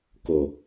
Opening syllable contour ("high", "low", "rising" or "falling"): low